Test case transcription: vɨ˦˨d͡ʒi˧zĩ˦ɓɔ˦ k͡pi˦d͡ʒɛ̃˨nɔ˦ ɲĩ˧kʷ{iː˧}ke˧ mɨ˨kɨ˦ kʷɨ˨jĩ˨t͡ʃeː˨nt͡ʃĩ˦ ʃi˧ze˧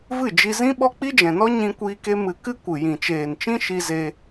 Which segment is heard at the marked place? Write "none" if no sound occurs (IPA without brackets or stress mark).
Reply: iː˧